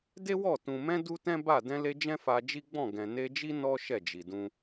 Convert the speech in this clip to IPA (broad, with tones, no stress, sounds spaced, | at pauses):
d e˦ w ɔ˦˨ t ũ˨ m ɛ̃˧ d u˦ t ɛ̃˦ b a˦˨ d ɛ̃˧ l e˧ d͡ʒ ɛ̃˦ f a˧ d͡ʒ i˦ ɡ͡b ɔ̃˦˨ ɡ ɛ̃˨ n e˧ d͡ʒ i˦ n ɔ˦ ʃ ɛ˦˨ d͡ʒ i˨ d ũ˧